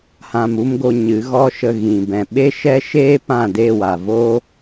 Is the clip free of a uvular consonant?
yes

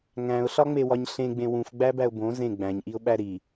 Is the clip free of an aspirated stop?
yes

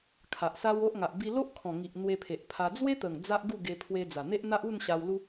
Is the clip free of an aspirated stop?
no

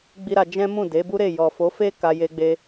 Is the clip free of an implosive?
yes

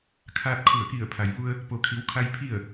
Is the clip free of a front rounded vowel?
yes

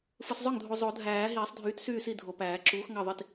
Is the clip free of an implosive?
yes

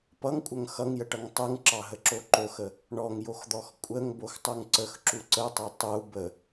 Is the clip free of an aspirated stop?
yes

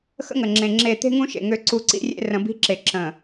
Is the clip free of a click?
no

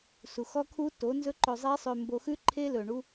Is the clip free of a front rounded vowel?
no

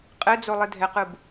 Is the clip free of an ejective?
no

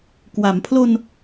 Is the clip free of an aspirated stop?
no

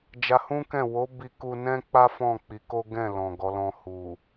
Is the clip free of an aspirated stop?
yes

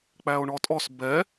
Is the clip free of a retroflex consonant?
no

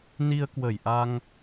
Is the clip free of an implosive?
yes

